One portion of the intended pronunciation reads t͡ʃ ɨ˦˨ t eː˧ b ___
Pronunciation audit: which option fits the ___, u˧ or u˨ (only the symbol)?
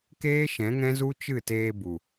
u˨